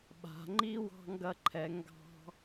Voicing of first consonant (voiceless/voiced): voiced